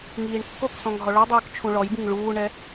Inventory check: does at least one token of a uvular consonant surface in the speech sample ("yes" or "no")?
no